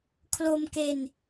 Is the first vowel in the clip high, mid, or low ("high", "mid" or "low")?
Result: mid